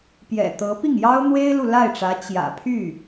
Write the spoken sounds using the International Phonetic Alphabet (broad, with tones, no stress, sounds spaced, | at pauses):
p j ɛ̰˨˩ t̪ ɤ˧˥ p i˥˩ ŋ j ɑ˥ ʊ̯ n̪ w e˥ ɪ̯ l u˨ l a˥˩ ɪ̯ ʈ͡ʂ ä˧˥ t͡ɕ j ä̰˨˩ pʰ y˥˩